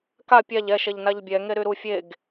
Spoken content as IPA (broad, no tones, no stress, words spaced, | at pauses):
ka pʲaʎ ɛ ʃɛʎnaʎbʲɛ ŋeɾyɾu fʲeɡ